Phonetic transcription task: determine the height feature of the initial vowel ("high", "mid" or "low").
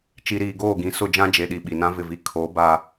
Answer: high